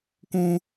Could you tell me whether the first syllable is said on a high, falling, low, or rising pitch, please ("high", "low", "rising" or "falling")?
high